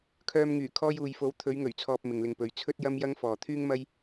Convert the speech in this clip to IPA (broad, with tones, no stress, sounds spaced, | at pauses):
kʰ œː˧ m ŋ yː˨˩ kʰ ɔː˧ j uː˨ j f o˨˥ w t̪ʰ ɵ˨˧ ɥ ŋ ɵ˨˩ ɥ t͡sʰ ɔː˨ p̚ m ɪ˨ ŋ l ɪ˧ ŋ p ɵ˨˥ ɥ t͡sʰ ɵ˥ t̚ j ɐ˥ m j ɐ˥ ŋ f ɔː˨ t̪ʰ yː˥ ŋ m ɐ˥ j